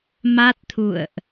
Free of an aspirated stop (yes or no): no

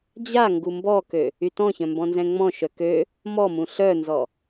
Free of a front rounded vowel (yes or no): no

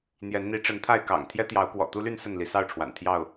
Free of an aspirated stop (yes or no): no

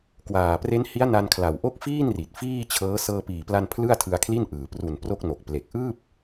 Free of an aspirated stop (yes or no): no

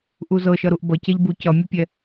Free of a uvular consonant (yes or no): yes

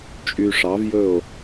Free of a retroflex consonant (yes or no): no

